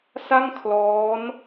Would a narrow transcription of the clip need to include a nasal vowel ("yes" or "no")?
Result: no